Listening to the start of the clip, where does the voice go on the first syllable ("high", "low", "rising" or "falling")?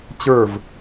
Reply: falling